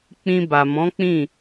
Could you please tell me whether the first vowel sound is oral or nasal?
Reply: nasal